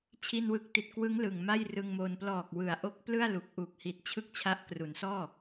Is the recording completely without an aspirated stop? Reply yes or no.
no